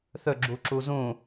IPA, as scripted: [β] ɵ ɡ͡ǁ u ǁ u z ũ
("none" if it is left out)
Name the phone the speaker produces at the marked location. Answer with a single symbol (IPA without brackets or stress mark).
θ